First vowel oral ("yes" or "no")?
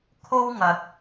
yes